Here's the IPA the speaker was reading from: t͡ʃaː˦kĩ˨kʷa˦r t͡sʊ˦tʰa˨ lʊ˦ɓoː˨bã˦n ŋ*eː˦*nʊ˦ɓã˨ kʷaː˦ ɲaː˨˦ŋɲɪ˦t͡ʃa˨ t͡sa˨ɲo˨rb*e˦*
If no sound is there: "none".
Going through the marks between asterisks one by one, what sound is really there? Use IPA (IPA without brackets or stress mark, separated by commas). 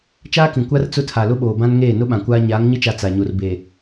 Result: eː˦˨, e˨